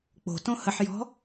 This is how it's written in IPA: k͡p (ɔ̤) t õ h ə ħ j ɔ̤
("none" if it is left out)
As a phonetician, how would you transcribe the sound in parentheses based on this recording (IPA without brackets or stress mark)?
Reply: o̤